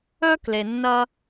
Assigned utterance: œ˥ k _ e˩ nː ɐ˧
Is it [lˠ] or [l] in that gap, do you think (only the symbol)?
l